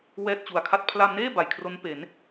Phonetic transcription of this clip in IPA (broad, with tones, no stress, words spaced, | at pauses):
wɛː˥˩t̚t͡ɕu˨˩a̯kʰa˥˩t̚ pʰla˧mneː˥˩ ba˨˩jkʰro˦˥npe˩˦n